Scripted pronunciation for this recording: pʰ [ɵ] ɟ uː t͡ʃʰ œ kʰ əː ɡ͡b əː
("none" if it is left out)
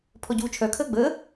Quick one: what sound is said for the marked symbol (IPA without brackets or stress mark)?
ɔ